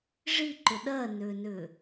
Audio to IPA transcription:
ʐiǃʏ ɗɜnʏːnʏː

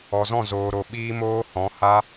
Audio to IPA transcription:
ɔ˨zɔ̃˦˨ zoː˨ɾo˨ ɓiː˦moː˦hɔ̃˨˦ ha˦

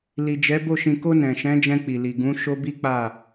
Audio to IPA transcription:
li˨d͡ʒɛ˨˦ bo˦˨ ʃĩ˨ko˧ nɛ̃˨ ʃɛ̃˨˦d͡ʒɛ̃˧ k͡pi˨li˨ ɡũ˨˦ ʃo˦bi˦k͡pa˦˨

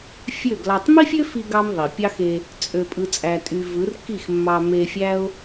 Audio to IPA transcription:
fʲø˦˨ɡlɑ˧tˤ mi˦fʲø˦ fi˦ɡɑ˦m ðˤi˨ pʲɑ˦xe˧ | t͡sʼø˧ pʼɯ˧t͡sʼæ˧tʼy˧ vɯ˨˦rki˦˨x mːɑ˧me˧fʲæ˦ʊ̯

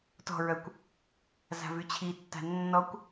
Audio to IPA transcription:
tɔ̤ɹœkʷ | za̤vyt͡ɕʰitːa̤ nːɔkʷ

